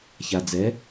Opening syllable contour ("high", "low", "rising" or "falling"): low